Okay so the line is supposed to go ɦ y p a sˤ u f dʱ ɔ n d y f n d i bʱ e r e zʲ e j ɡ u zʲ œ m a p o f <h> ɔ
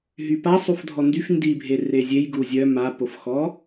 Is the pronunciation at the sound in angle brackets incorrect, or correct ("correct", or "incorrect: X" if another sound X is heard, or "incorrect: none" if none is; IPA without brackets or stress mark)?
incorrect: x